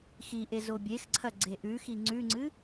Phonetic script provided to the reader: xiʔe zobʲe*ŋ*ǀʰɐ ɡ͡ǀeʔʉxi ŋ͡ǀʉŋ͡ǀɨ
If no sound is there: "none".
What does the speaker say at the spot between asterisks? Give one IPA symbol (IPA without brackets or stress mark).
x